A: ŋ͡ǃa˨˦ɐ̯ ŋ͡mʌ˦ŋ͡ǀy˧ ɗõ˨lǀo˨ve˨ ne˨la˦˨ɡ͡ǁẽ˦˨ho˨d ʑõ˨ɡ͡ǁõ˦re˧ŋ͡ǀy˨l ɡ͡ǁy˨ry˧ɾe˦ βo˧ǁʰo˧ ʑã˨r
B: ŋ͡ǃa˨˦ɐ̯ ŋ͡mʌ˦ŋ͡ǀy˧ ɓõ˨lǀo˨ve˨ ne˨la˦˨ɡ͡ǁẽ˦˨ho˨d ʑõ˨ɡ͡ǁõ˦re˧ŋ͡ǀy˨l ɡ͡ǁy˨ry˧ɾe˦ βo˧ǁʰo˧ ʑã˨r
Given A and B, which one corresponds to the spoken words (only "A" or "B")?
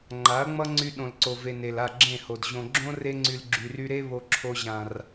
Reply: A